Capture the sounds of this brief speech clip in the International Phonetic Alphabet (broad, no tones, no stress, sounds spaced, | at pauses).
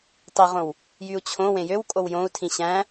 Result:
tˤ i ʁ õ w | j y u̯ t͡ɕʰ õ w ẽ j ø w kʼ o w j õ u̯ tʰ ĩ ɕ æ̃